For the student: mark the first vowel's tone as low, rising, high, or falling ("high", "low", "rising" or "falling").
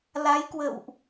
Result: rising